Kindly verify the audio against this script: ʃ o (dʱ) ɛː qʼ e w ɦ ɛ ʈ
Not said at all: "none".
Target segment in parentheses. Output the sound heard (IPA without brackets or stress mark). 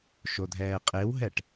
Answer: dʱ